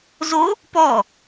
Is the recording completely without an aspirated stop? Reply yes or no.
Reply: yes